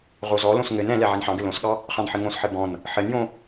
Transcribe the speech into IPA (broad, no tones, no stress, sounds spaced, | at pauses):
ʁ o z ɔ l õ s ŋ ɘ n ɛ̃ l ɛ ʕ ɛ n ħ ɑ̃ ɡ ɘ l õ s ɠ ɑ | χ ɑ̃ n ħ ɘ ŋ õ s ħ ɘ b ɔ̃ n | ħ ɘ n j õ